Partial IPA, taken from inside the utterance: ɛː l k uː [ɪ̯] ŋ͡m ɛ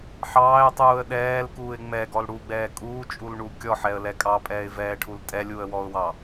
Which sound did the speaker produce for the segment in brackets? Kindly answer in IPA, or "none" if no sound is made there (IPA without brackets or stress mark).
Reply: ɪ̯